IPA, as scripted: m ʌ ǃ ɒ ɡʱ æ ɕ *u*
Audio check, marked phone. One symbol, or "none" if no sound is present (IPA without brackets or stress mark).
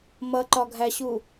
u